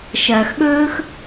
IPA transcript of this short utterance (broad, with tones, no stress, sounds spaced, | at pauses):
ʃ ɐː˨ x ɠ ɵː˦ x